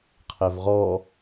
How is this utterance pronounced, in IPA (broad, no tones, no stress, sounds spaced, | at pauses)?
qʰ ɛ v ʁ ɔ